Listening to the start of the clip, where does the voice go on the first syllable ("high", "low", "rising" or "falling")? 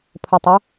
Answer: low